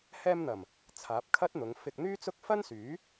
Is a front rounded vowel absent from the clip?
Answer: no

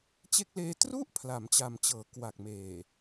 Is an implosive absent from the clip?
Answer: yes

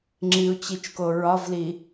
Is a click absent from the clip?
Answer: no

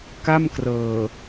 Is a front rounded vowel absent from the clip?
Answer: yes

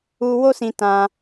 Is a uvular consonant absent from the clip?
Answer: yes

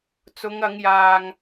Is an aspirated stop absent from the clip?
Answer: yes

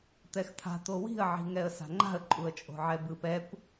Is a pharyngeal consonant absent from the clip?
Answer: no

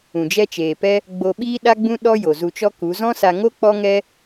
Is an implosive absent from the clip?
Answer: no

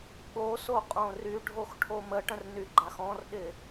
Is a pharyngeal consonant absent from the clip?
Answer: yes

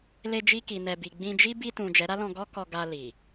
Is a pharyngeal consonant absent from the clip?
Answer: yes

